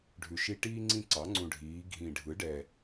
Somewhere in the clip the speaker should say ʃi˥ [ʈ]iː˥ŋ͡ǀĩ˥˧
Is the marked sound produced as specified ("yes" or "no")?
yes